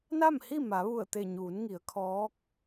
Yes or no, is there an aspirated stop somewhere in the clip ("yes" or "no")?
yes